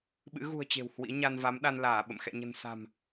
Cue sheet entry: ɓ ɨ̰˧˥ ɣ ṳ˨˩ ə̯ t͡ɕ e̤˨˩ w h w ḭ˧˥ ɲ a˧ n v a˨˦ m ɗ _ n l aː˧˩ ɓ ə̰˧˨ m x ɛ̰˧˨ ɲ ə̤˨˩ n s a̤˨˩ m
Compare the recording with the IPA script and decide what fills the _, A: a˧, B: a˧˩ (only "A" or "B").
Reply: A